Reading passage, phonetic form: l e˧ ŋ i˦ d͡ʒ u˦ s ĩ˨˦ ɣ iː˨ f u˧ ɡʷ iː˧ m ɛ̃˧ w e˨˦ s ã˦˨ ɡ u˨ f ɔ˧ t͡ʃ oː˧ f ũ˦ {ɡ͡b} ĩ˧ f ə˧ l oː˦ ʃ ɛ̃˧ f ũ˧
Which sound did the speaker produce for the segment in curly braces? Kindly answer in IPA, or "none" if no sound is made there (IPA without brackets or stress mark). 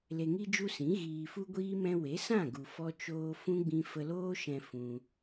ɡ͡b